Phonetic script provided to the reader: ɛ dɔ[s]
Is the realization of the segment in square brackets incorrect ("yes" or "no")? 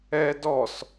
no